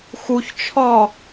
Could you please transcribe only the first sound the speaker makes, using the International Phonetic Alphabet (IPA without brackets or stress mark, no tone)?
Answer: x